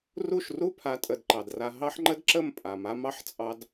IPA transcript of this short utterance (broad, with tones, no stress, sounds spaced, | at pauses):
r u˦˨ ʃ r u˦ pʰ a˨˦ tʼ ə˨ d ǃ ɑ˨ d r a˧ ɦ ɑ˦ ħ ŋ͡ǃ ə˦ d ǁ ə˦˨ m pʼ a˨ m a˦ m ɑ˦ ħ t͡sʼ ɑ˧ d